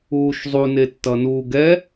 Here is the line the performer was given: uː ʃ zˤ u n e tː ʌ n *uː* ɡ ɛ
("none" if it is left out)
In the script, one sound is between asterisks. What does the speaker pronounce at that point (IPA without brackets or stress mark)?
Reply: uː